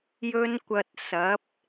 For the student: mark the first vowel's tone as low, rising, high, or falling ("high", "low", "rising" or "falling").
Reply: high